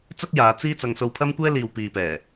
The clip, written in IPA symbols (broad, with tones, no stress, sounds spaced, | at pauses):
t͡s ɐ˥ k̚ j aː˨˧ t͡s iː˥ t͡s ɐ˧ ŋ s o˧ w pʰ ɐ˥ m kʷ ɛː˥ l iː˨ w p iː˨ p ɛː˨˩